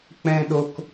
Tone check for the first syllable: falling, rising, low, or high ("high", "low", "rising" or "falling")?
high